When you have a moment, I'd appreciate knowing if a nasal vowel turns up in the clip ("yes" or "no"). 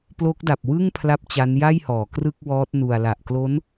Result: no